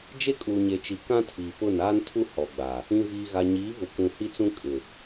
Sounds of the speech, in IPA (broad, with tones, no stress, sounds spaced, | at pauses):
d͡ʒ e˦ kʼ uː˨ ɲ e˨ t͡ʃ i˨ k ã˦ tʰ iː˨ p ʊ˦˨ n aː˦ n tʰ u˦ h ɔ˨ ɡ͡b a˨ | ĩ˨ v iː˨ ɣ a˨ ɲ iː˨˦ v ʊ˨ kʷ ũ˨ h i˦ t͡s ũ˦ kʼ ɪ˨